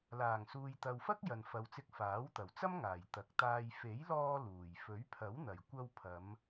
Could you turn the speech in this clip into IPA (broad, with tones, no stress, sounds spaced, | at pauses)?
l aː˨˩ ŋ s uː˨ j t̪ ɐ˨ w f ɐ˥ k̚ j ɐ˨ n f ɐ˨ w t͡s ɪ˧ k̚ f aː˨˥ w t̪ ɐ˨˩ w t͡s ɐ˥ m ŋ aː˨˩ j t̪ ɐ˨˥ k̚ t̪ aː˧ j f e˨˥ j l ɔː˧ l uː˨˩ j f ɵ˨˥ ɥ pʰ ɐ˨˥ w n̪ ɐ˨˩ j kʷ ɐ˧ w pʰ ɐ˨˧ m